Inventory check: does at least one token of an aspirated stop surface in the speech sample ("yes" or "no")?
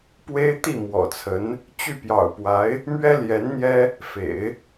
yes